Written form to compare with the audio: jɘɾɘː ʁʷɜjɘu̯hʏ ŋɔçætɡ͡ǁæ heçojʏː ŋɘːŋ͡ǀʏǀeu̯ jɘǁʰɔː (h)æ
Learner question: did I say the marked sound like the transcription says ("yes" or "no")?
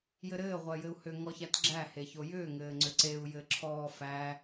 no